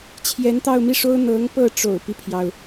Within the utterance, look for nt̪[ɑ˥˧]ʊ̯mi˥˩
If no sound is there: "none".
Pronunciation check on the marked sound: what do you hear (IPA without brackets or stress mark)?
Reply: ɑ˥˧